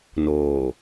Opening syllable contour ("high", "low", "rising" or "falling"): low